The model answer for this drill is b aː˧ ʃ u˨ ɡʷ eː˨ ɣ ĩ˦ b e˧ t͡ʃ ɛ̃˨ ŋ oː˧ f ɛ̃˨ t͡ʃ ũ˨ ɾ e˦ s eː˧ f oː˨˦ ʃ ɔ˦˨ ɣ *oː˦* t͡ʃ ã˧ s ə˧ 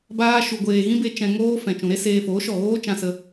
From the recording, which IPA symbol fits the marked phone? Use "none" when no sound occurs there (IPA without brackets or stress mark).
oː˦